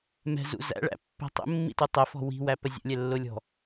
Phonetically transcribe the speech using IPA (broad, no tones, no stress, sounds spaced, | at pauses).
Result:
m ɛ̤ z ṵ z æ̰ ɭ æ̰ pː ɛ̤ tˤ ə̰ mː ḭ t u tˤ ə f ɔ̤ w i̤ w æ p ə zʲ ə̰ lʲ ɛ lː ʊ lʲ ɔ̤